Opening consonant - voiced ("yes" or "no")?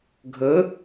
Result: yes